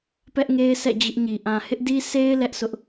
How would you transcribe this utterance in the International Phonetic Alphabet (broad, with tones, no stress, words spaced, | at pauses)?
pɛ˦ʔŋe˦ɪ̯sɛ̰˦˨ d͡ʑɪ˦ʔɲi˨ ʔã˨hɪ˦ʔdi˦ se˦ɪ̯ lɛ˦ʔsʊ˦ʔ